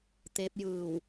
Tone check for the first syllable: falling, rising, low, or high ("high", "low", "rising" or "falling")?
rising